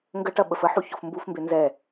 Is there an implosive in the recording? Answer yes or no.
yes